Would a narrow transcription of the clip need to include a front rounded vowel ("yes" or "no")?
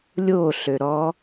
yes